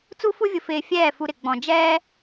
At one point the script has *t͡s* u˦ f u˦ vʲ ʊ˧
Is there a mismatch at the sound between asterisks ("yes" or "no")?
no